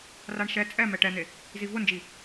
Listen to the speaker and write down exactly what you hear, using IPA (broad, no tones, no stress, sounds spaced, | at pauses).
r a ɳ ʃ ɛ t͡sʼ ɛ m ɛ ʈ ɛ n̪ e | z i v ʊ n d͡ʒ i